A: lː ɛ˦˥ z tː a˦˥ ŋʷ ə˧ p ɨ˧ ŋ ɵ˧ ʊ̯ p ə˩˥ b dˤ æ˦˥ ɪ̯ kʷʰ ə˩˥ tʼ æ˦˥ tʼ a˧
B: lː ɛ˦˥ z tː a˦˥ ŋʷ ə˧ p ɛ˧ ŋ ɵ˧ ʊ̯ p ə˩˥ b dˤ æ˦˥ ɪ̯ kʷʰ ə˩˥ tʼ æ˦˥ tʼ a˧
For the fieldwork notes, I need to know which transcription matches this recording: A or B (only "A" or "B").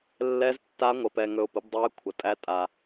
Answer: B